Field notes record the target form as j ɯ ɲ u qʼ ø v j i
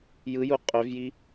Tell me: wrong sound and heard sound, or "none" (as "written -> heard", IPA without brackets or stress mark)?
ɲ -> j